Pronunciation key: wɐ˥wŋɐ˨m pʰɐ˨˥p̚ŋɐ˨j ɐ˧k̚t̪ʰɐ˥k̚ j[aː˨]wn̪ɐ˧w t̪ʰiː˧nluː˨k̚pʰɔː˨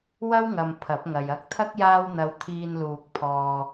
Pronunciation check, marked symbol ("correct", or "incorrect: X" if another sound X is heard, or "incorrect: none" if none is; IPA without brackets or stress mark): incorrect: aː˥